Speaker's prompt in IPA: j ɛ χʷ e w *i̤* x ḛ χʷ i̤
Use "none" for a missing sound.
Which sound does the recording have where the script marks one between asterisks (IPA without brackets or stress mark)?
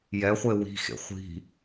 i̤